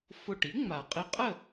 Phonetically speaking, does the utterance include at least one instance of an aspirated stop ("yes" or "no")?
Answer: no